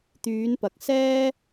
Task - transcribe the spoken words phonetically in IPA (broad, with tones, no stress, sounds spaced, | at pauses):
t̪ yː˨˧ n p ɐ˨ k̚ s ɛː˥